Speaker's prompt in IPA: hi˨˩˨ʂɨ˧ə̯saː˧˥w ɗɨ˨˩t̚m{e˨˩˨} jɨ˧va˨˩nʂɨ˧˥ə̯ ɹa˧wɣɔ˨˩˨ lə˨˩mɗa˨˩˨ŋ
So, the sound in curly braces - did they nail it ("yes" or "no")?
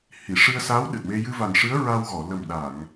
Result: no